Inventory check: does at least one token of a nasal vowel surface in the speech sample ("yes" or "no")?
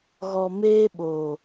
no